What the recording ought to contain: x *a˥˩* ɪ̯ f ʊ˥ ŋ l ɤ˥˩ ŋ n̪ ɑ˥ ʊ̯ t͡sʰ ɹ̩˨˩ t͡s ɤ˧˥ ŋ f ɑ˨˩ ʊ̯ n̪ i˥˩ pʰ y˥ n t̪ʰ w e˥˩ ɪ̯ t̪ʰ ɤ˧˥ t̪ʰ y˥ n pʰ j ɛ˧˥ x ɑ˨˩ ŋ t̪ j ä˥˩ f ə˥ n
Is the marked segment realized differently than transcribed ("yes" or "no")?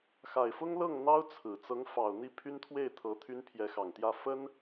yes